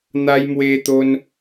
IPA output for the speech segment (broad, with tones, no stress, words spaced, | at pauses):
n̪a˧jmwe˧t̪o˧n